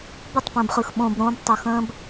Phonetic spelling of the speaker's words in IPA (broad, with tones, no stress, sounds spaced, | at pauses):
b ə˦˨ tˤ p ə̃ː˨ b χ ɯ˨ x ɓ õ˨ b ɾ õ˧ b tˤ o˨ x ə̃ː˦ b